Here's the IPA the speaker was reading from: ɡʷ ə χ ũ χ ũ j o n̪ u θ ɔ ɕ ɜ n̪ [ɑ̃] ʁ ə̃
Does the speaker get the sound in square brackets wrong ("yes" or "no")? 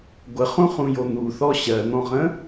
yes